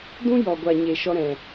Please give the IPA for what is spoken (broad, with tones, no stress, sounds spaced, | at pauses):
d ũ˦ j ɔ˨ ɡʷ a˨ ɲ e˨ ʃ ɔ˧ ɾ ɛ̃˨